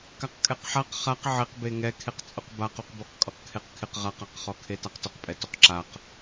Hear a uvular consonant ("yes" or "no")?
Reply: yes